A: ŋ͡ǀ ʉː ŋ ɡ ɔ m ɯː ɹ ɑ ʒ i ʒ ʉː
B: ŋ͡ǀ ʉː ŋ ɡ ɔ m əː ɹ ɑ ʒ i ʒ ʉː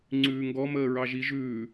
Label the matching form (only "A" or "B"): B